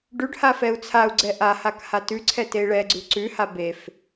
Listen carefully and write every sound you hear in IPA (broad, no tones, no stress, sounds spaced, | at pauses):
ɖ ʉ ɖ h a f ɛ u̯ t͡sʰ a u̯ ɡ͡ǀ ɛ ʔ a h a k h a t ʉ ǀʰ ɛ t e i̯ ɭ ɛ ɡ͡ǀ ʉ ǀ ʉ h a b e f